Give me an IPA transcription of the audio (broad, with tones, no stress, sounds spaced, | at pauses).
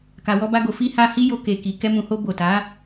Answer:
k a˨ w ɔ˧ b a˧ ɡ o˨ f i˧ h a˧ h i˦ j o˧ k e˨ k i˨ k ɛ˧ m ũ˨ h o˧ b o˨ t a˨˦